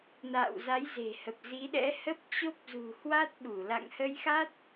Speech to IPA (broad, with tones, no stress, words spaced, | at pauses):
na̰ː˧˨wza˨˦jze̤˨˩hə˨˩p̚ zi˨˦ɗɛ̰˧˥ hə˦˥p̚t͡ɕo˦˥p̚zṳ˨˩ hwa˦˥t̚ ɓu˧˩ la̰˧˨ŋhə˧jxa˦˥t̚